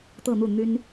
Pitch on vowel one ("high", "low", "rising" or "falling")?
falling